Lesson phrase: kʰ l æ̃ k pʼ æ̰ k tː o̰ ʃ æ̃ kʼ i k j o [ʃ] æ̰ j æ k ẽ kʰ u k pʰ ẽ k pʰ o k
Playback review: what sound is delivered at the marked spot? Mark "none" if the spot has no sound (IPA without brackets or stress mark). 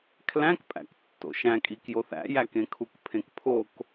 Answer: θ